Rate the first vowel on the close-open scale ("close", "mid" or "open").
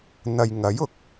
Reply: open